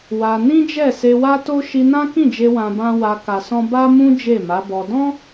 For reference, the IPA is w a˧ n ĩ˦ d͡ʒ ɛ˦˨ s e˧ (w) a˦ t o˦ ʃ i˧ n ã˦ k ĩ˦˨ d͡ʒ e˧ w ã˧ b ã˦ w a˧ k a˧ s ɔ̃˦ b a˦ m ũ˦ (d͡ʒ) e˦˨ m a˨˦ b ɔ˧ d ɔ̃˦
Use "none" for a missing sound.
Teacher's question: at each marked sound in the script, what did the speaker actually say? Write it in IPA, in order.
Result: w, d͡ʒ

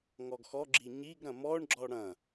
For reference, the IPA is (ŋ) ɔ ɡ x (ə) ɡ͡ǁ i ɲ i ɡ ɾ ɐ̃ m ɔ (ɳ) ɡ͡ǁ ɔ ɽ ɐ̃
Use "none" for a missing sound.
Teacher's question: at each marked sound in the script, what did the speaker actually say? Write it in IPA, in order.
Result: ŋ, ɔ, ɳ

